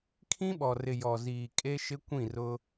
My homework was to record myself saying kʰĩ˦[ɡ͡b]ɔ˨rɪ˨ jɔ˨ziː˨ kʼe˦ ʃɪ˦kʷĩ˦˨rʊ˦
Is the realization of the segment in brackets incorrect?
yes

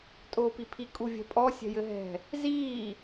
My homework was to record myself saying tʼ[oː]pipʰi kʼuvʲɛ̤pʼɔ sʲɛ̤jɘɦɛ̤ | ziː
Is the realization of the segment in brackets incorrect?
no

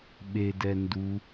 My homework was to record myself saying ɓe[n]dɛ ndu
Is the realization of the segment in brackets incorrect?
yes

